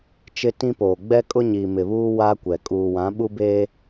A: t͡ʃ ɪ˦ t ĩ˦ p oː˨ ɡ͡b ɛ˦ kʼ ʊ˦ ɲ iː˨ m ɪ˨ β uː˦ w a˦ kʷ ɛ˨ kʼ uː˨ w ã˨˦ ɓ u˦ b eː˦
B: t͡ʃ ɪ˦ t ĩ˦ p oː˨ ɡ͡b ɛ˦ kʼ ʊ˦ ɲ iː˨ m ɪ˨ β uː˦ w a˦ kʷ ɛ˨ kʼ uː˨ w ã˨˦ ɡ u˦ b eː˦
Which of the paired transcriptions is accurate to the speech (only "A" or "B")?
A